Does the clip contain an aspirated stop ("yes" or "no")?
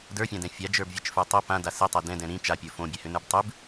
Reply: no